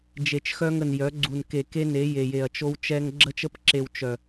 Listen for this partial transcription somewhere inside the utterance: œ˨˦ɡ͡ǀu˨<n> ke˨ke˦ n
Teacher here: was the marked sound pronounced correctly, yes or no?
yes